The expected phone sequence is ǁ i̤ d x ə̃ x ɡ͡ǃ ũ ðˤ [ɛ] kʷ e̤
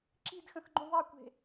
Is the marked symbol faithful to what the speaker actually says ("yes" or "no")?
yes